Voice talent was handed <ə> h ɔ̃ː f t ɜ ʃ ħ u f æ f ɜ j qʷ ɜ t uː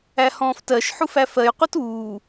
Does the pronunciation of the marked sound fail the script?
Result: yes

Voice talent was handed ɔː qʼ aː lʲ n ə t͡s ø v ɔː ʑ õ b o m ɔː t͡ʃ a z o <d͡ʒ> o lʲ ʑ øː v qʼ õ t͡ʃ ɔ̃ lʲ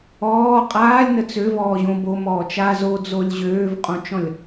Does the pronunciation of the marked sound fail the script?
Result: yes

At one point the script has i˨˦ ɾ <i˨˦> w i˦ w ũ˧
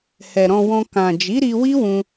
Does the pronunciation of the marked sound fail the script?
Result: yes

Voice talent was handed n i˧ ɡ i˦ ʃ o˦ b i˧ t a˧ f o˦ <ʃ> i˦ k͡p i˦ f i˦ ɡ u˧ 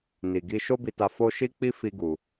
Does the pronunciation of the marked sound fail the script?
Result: no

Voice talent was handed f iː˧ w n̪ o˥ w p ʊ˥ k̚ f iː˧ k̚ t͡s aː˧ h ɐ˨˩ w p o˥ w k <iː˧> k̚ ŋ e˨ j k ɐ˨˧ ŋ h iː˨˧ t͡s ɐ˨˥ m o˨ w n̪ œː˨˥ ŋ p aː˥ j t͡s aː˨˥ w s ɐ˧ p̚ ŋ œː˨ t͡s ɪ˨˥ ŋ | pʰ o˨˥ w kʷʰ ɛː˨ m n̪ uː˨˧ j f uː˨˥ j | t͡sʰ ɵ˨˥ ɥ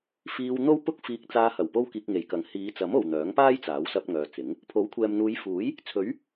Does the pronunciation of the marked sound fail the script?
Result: no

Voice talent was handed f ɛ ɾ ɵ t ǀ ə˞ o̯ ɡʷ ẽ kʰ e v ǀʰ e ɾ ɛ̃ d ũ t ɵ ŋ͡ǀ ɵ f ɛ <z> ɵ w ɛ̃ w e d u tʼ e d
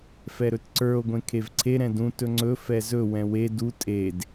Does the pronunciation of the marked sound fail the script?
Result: no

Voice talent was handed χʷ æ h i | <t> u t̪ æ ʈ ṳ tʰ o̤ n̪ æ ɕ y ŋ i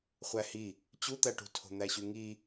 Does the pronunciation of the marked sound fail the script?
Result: yes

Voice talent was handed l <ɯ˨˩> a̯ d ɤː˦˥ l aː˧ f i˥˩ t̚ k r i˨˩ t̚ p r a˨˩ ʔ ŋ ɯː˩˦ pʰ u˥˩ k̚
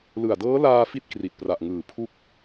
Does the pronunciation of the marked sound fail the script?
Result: no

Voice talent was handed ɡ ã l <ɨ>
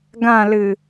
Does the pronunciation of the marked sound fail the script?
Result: no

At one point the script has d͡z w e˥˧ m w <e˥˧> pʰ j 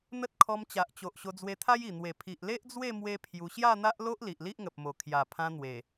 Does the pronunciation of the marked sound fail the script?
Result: yes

